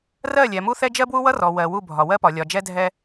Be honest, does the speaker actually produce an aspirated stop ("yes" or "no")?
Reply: no